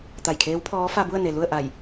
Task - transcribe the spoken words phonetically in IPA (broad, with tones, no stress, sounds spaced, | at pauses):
t̪ a˧˩ j kʰ eː˧˥ w pʰ ɔː˧˥ f a˧ b u˥˨ ə̯ n e˩ l u˥˨ ə̯ ʔ a˧˩ j